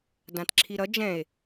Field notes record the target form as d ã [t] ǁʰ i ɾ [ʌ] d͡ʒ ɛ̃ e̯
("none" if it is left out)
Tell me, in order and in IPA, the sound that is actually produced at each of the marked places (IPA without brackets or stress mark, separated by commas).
t, ʌ